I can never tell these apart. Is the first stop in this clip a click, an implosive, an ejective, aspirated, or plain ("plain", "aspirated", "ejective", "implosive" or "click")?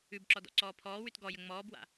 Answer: plain